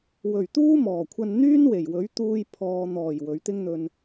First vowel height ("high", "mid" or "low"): mid